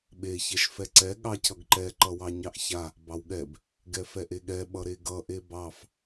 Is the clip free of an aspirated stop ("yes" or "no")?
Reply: no